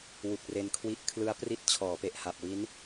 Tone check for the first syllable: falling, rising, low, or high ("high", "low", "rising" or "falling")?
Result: low